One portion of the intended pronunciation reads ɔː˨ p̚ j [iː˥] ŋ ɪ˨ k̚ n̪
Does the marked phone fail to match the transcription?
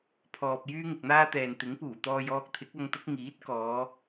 yes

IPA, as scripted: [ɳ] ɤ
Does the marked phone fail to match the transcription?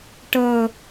yes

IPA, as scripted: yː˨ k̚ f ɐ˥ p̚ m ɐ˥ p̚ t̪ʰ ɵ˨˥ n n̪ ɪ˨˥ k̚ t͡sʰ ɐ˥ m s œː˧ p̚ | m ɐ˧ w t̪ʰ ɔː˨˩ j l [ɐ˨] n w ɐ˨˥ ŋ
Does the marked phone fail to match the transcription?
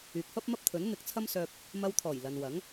no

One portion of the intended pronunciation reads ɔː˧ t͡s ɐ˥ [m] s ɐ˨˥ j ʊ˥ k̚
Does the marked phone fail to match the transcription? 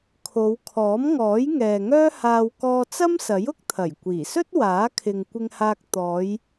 no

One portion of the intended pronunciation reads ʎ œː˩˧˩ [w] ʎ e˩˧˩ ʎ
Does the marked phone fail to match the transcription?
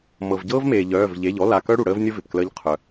yes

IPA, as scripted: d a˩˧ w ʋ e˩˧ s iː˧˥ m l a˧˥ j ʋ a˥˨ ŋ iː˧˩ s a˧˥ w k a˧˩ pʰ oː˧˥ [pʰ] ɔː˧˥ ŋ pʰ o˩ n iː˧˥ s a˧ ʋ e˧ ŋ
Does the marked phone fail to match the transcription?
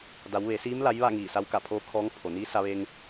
yes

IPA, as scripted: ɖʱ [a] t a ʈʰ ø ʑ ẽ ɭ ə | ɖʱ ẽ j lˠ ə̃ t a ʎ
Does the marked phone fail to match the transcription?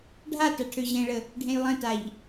no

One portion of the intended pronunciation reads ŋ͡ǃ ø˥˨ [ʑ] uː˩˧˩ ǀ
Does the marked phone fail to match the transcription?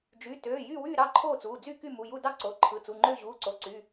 no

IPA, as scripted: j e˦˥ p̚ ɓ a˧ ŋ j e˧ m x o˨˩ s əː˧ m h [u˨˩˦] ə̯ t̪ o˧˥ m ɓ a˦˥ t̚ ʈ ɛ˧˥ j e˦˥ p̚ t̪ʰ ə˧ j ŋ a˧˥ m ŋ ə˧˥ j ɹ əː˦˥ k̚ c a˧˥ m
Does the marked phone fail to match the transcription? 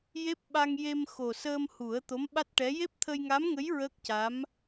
no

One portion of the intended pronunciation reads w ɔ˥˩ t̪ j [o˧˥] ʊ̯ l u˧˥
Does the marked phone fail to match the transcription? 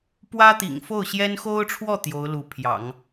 no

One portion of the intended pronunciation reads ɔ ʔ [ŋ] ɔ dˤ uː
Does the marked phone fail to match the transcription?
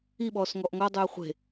no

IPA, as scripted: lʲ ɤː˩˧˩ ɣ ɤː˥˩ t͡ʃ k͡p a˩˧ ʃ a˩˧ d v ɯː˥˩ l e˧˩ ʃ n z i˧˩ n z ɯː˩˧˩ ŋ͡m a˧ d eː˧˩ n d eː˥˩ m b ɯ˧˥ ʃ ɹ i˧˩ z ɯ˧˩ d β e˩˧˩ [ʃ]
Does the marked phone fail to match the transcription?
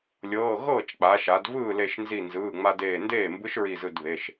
no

